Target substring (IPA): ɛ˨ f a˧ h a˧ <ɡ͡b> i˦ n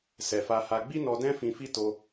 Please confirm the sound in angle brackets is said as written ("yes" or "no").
yes